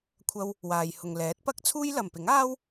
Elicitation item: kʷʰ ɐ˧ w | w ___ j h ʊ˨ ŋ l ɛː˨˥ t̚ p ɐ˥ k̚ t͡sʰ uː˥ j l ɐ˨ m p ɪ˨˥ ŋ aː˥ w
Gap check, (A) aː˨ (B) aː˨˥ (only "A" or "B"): A